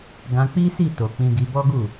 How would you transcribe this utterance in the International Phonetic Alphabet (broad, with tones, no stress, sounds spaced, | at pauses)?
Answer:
ɡ ã˧ k͡p i˦ s i˦˨ t o˨ k͡p ĩ˧ ɡ i˧ b ɔ˦ ɡ u˦˨